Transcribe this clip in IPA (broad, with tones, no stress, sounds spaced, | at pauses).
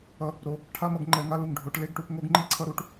ʌ˨ | ɾ o˨ | ʈʰ a˦ m ʌ˨ ɡ ŋ͡ǃ ɛ˧ ŋ a˦ l u˨ ŋ ɖʱ o˨˦ ʈ l e˦ ɡ ʈ u˧ p ŋ o˦ ɡ ŋ͡ǃ i˦ ǀʰ ʌ˦ ɾ u˧ ʈ